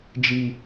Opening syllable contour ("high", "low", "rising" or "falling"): low